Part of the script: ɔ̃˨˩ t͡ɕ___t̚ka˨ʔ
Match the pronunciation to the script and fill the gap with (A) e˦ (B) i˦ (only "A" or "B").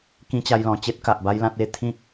A